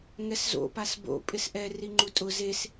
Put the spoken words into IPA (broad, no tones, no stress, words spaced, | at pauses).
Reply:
ŋɛszo̰ pasbo̰ pʼɪsʔɛ riŋ͡ǃutʼʊ zes